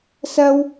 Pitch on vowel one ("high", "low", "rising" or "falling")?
high